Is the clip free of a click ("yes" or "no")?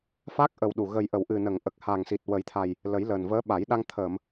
yes